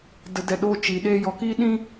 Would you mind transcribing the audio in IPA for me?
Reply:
d ə˨ d ɛ˨ ɗ o˧ t͡ʃ i˨ ɗ eː˧ j ɔ˨ k iː˦ ɗ ĩ˦

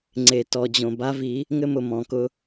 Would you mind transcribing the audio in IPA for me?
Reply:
ŋ͡ǀ e˨ t ɔ˨ d͡ʑ õ˨ b a˦ v i˨˦ | ŋ ɘ˦ m ʊ˨ m ɔ̃˨ k ʊ˦

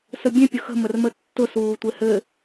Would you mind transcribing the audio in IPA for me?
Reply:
s ə bʲ ẽ pʲ ʊ x ə̤ m ə r m ə tː ʊ s uː tʷ e h ɘ

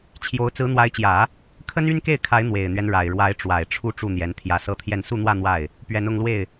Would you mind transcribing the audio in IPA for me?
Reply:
t͡ɕʰ j o˧˥ ʊ̯ t͡s ɹ̩˧˥ n̪ w a˧˥ ɪ̯ t͡ɕ j ä˨˩˦ | kʰ ə˥ n y˥ n k e˥˩ ɪ̯ kʰ a˧˥ ɪ̯ n̪ w e˨˩ ɪ̯ n̪ ɥ ɛ˦ n ɻ a˨˩ ɪ̯ ɻ w a˧˥ ɪ̯ ʈ͡ʂ w a˨˩ ɪ̯ ʈ͡ʂʰ u˥˧ ʈ͡ʂ u˥˩ n̪ j ɛ˧˥ n t̪ʰ j ä˧˥ s ɤ˥˧ t̪ʰ j ɛ˥˧ n s u˥˧ n̪ w ä˥˧ n̪ w a˥˩ ɪ̯ | p ɥ ɛ˧˥ n ʊ˥˧ ŋ l w e˥˩ ɪ̯

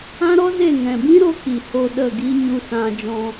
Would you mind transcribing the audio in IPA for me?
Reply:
ã˦ ɾ ɔ˦ z e˦˨ ŋ ɛ̃˨ b ĩ˦ ɾ o˧ k i˨ h o˧ ɗ ə˦˨ ɡ i˦ ɲ u˧ s ã˧ d͡ʒ ɔ̃˧

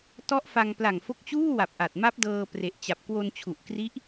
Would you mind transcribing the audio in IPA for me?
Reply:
t ɔ˦˥ ʔ f a˧ ŋ p l a˨˩ ŋ f o˦˥ k̚ t͡ɕ uː˥˩ w a˨˩ p̚ ʔ a˨˩ t̚ m a˦˥ p̚ d ɤː˧ p r e˨˩ ʔ t͡ɕ a˨˩ p̚ k w o˧ n t͡ɕʰ u˨˩ ʔ k r i˦˥ ʔ

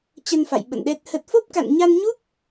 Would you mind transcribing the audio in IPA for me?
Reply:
t͡ɕ ə˧ n f a̰˧˨ j ɓ ə̰˧˨ n ɗ ɛ˦˥ t̚ h ə˦˥ t̚ f o˦˥ p̚ k a̰˧˨ n ɲ a˧ n ɲ u˦˥ p̚

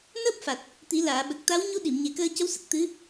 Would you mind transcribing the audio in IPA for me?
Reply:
n əː˦˥ p̚ f a˨˩ t̚ | t̪ i˨˩˦ l aː˨˩˨ ɓ ə˨˩ k̚ t̪ a˧˥ w ɲ u˧˥ ɗ i˨˩˨ m ɲ e˨˩ k əː˧ c ə˧˥ w s ə˨˩ k̚ t̪ ɨ˧˥

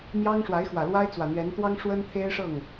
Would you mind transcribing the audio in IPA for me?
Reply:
m j ɑ˥ ŋ ʂ w a˧˥ ɪ̯ x w ä˨˩ l w a˥ ɪ̯ t͡s w ä˨˩ n̪ ɥ ɛ˧˥ n t̪ w ɑ˥ ŋ ʂ w ə˥ n t̪ʰ e˥ ɪ̯ ʂ ɤ˥˩ ŋ

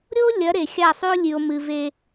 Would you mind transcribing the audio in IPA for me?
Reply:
ɾʲ o˦ lʲ ɐ˨˦ ɾ e˨ xʲ a˦˨ sˤ ʉ˦ o̯ lʲ ʉ˨ o̯ m ɨ˨ v e˦

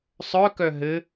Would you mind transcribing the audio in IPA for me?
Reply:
sˤ œ k œ ɦ ɘ

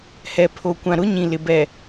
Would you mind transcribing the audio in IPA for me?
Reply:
h ɛ˨ pʰ o˨ kʷ ã˨ ɾ ʊ˨˦ ɲ ĩ˨ l ɪ˨ b ɛ˨

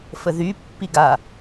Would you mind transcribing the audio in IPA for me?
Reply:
f ə ð y pː i ɡ a

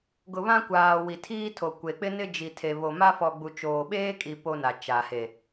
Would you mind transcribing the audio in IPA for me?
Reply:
ɡ ʊ˨ β ã˦ kʷ aː˨ w i˨ tʰ iː˦ tʰ o˨ kʷ e˨ k͡p ɪ˦ n ɪ˦ d͡ʒ i˨ tʰ e˨ β o˨ m a˦ f ɔ˨ ɡ͡b u˨ t͡ʃ oː˨ ɓ eː˦ kʼ i˨ p o˦ n a˨ t͡ʃ a˨ h e˨

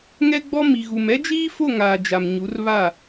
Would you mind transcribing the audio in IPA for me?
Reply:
ŋ ɛ˦ ɡ͡b ɔ˦ m i˨ ɣ u˨ m ɛ˦ d͡ʒ iː˦ f o˦˨ ŋ aː˨ d͡ʒ a˨ m ɲ u˨˦ r β a˦˨

